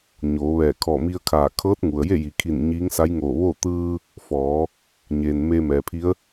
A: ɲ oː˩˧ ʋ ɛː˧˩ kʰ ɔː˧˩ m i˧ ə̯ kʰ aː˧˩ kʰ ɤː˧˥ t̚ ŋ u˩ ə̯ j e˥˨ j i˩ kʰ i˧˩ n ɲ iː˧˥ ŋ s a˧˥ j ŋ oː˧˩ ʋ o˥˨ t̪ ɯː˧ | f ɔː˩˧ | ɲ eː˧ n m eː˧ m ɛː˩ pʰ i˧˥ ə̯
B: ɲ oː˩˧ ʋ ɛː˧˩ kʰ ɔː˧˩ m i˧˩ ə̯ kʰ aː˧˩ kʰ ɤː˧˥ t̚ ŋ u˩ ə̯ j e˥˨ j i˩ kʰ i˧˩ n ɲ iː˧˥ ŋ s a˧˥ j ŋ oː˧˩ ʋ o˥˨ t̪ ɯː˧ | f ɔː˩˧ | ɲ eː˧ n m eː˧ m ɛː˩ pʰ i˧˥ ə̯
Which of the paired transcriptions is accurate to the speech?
A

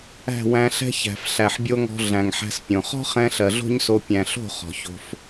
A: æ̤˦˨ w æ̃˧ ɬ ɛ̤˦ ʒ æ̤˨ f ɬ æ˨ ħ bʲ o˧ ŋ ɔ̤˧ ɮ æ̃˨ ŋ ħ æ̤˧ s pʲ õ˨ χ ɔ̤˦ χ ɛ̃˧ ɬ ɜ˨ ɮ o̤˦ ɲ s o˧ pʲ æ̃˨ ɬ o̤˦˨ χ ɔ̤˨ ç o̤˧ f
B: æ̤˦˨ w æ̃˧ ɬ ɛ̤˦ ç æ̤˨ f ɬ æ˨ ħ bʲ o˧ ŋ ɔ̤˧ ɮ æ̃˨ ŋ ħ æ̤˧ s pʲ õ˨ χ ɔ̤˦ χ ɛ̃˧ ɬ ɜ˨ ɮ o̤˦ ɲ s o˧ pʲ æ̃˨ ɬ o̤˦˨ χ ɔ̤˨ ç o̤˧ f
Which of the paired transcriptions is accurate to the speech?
B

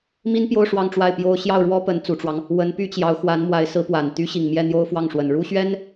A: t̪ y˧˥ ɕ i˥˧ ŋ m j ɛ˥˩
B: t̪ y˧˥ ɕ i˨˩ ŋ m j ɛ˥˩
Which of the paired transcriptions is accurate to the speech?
B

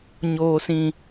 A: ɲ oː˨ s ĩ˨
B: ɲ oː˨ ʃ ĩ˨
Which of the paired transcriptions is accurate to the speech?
A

